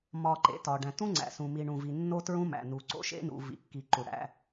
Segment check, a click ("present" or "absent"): present